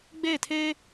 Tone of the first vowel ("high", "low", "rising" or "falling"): falling